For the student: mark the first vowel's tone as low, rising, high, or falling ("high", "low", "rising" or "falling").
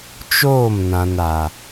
falling